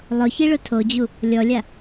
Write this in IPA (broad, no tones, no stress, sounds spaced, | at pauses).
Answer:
lˠ ʊ ç i ɭ ʊ tʰ o d͡ʑ u | lʲ ɔ lʲ a